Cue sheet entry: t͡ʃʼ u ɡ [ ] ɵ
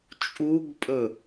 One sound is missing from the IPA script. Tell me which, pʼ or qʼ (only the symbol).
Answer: pʼ